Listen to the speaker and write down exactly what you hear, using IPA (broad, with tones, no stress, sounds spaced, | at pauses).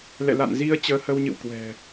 l ɛ̰˧˨ l a̰˧˨ n z i˧ ə̯ t͡ɕ əː˧ h ə˧ w ɲ ɨ̰˧˨ w k w ɛ̤˨˩